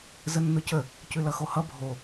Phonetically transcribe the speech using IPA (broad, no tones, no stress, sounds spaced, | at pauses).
z ə nː ʊ c ə | c ʉ l ʌ x o h ʌ bʱ o